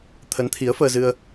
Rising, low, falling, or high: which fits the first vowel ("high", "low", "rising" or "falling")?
rising